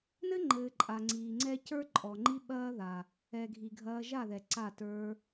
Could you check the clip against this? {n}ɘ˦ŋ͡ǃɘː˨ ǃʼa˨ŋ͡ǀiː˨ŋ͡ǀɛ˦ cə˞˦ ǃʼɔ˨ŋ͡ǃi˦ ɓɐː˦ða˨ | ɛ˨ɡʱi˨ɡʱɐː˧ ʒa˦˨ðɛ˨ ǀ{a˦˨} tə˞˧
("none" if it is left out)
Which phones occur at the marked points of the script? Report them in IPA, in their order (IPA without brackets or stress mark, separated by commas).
n, a˦˨